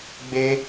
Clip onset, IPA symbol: ɡ͡b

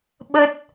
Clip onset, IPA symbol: ɓ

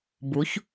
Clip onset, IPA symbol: b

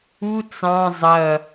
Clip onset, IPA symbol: u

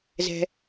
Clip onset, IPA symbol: z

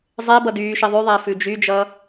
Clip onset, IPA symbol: zˤ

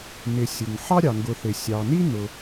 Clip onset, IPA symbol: n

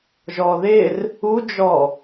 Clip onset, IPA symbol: ʒ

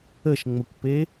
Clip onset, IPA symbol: ə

